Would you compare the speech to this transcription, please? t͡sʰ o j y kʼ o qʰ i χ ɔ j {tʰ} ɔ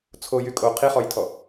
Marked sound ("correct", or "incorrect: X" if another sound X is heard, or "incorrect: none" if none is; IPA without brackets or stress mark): correct